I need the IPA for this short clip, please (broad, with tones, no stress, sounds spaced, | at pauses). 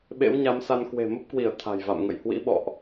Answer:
ɓ ḛ˧˥ w ɲ a˨˦ m s a˧ n k w e̤˨˩ m ə˦˥ p̚ k w i˧˩ ə̯ t̪ʰ a̤˨˩ j v a̰˧˨ m ŋ ə̰˧˨ j h w ḭ˧˥ ɓ ɔ̰˧˨ ʔ